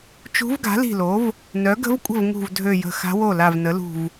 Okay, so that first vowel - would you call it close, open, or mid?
close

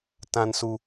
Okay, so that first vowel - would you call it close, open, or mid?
open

